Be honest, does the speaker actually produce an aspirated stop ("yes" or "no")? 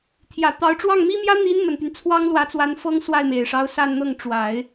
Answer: yes